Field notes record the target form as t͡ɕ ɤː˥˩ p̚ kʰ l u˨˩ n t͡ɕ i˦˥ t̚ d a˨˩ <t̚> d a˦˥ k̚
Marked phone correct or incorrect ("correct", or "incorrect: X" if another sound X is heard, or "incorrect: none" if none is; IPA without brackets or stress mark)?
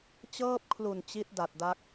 correct